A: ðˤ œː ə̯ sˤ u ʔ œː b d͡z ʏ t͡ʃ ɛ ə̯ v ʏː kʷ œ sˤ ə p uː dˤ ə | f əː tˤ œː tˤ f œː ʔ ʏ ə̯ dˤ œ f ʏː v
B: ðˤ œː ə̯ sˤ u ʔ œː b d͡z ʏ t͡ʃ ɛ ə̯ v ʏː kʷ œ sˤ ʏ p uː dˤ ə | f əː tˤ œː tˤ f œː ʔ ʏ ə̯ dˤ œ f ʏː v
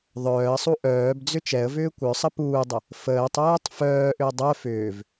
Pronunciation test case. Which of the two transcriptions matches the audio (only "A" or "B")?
A